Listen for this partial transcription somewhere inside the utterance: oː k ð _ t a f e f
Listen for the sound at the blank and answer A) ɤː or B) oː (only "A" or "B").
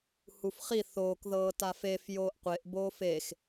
A